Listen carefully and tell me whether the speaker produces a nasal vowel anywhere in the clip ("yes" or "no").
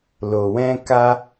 yes